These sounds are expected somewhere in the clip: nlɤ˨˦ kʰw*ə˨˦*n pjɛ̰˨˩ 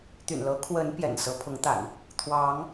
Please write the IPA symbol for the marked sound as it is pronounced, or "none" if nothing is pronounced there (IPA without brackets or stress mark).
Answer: ə˨˦